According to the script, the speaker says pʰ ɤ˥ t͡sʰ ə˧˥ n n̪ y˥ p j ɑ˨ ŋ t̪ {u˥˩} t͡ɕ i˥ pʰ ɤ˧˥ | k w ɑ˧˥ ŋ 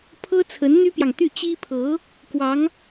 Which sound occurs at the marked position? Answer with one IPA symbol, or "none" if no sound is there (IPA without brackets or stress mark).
y˥˩